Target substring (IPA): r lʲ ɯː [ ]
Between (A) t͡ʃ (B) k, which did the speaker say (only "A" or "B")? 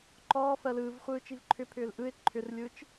A